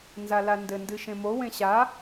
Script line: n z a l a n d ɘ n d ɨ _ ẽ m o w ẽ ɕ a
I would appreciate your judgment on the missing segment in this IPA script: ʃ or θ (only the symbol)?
ʃ